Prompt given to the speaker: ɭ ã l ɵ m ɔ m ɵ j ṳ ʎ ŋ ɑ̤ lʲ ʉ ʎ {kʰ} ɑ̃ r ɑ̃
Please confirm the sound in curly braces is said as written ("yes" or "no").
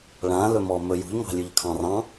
yes